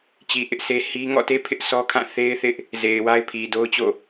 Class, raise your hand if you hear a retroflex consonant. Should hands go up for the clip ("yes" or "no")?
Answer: no